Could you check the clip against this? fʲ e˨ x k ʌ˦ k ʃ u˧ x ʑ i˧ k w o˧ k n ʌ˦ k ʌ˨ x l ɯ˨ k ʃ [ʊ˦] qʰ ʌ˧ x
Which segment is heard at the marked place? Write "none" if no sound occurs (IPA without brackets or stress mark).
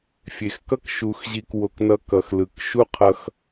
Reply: u˦